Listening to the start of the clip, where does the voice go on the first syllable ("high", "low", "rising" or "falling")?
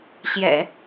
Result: low